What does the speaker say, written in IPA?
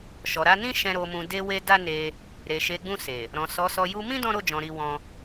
ʃ ɔ˨ ɾ a˨˦ n ĩ˦ ʃ ɛ̃˧ ɾ o˨ m ũ˨ d e˧ w e˧ d a˦ n e˧ | ɾ e˨ ʃ e˨˦ ɡ͡b ũ˦˨ s e˨ | ɾ ɔ̃˨ s ɔ˨˦ s ɔ˧ j u˧ m ĩ˦ d ɔ̃˦ ɾ o˦˨ d͡ʒ ɔ̃˨ ɾ i˧ w ɔ̃˧

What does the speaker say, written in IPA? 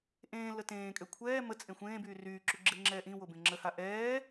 ʔ ẽː l ə t ẽː kʼ ø kʷʰ ɛː m ə t͡sʼ ẽ xʷ ẽː b yː r yː ǁ y ɡ͡ǁ e ŋ͡ǁ ɛː ʔ ĩ w o b ẽ ŋ͡ǁ ə h a ʔ ɛː

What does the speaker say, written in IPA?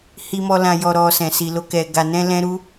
h i˧ m ɔ˧ l ã˧ j ɔ˧ ɾ ɔ˧ s ɛ̃˨ s i˧ l o˦ k ɛ˧ ɡ a˧ n ɛ̃˦ l ɛ̃˦ ɾ u˦

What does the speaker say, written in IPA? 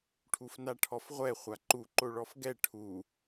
ʈʰ u f n a ʈʰ ɔ f ʁʷ ɛ χʷ a ǃ u ǃ o ɭ ɔ f ɡ ɛ ʈʰ u

